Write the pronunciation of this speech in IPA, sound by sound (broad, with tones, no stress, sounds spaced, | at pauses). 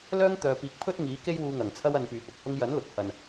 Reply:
l œː˥ ŋ t̪ œː˨ p iː˨˥ k̚ pʰ ɵ˥ t̚ ŋ iː˨˥ k e˥ j w uː˧ ŋ ɐ˨˩ ŋ t͡sʰ ɐ˥ w ɐ˧ n p yː˨ p ʊ˨ k̚ h ʊ˧ ŋ j ɐ˨˥ n l ʊ˨˥ k̚ h ɐ˨ n